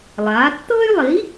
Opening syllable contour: rising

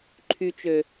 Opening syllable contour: low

